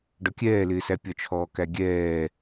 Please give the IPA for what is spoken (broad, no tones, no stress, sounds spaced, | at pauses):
ɖ ɒ kʲ ɛː l ɪː s æ pʲ ɒ t͡ʃʰ ɔː k æ ɡʲ ɛː